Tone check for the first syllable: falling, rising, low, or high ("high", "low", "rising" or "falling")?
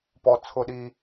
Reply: low